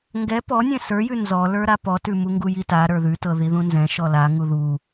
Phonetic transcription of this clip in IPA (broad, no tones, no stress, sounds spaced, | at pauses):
ŋ ɡ ɛ p ɔ nʲ ɛ̃ s ə˞ j ʉ n z ɔ l ə˞ ɾ a p ɔ t ʉ m u ŋ ɡ u j i t a ɾ ə˞ ð ʉ t ɤ ð i ð ũ n z ɛ̃ ʃ ɔ l a ŋ u ð u